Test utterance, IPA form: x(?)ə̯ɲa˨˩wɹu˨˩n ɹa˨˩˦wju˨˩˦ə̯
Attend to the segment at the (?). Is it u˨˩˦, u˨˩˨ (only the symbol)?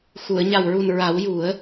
u˨˩˨